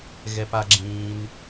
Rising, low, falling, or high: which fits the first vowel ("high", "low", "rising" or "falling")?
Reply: low